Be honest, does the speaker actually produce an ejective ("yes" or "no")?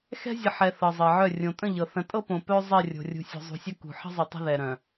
yes